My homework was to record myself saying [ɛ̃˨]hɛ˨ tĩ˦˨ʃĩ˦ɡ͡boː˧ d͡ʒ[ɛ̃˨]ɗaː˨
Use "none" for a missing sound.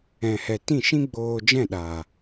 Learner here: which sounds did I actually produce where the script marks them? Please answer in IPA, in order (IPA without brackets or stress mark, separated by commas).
ɛ̃˨, ɛ̃˦˨